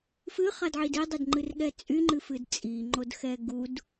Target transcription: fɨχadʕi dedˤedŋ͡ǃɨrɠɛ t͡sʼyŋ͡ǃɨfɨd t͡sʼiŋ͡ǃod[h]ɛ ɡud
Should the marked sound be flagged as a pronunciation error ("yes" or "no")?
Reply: yes